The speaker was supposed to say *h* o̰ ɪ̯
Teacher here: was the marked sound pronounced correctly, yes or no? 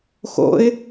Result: no